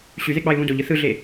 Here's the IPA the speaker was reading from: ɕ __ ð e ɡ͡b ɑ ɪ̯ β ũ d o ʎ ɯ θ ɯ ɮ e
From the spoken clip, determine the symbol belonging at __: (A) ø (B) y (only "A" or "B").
B